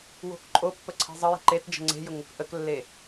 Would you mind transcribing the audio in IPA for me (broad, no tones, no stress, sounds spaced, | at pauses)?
w o̤ k ǃʼ o pː ə ǀʰ i̤ zˤ ə j ə̤ ǃ e t d͡ʒ ə̤ ŋ͡ǀ e̤ j ʊ ŋ ʊ k ʔ ə k lː e